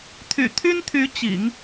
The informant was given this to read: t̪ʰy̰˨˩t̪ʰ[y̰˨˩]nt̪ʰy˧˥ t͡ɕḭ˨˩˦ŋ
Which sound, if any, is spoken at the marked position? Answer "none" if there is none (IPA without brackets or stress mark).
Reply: y˥